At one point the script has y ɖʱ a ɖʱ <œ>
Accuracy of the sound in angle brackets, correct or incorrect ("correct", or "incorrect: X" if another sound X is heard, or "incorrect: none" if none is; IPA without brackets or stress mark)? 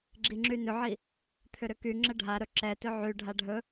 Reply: incorrect: ɵ